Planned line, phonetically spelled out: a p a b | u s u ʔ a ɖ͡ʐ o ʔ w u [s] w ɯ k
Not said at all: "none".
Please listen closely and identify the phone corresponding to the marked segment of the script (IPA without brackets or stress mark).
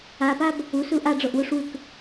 ʂ